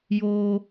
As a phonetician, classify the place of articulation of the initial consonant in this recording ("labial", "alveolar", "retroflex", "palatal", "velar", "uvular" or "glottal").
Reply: palatal